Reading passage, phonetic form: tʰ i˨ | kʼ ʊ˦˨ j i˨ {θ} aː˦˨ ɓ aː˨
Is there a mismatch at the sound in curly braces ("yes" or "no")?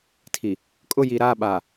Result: yes